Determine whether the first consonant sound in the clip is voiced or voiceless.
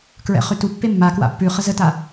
voiceless